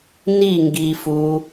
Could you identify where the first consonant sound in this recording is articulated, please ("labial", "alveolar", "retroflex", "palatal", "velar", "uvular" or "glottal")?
alveolar